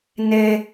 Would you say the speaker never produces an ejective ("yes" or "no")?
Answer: yes